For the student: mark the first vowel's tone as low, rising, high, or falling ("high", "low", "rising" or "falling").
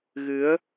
rising